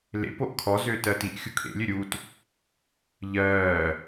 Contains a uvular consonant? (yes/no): no